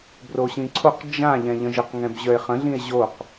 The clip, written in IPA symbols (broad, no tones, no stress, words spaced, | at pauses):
broɕĩǀʰoq d͡ʒã ʎɛ̃ʎə̃ʒəq ŋɛ̃bʑœe̯χə̃ ɮĩe̯ʑoq